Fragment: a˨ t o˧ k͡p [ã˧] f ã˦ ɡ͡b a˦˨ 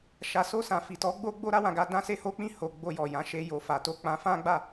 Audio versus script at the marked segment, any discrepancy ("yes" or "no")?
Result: no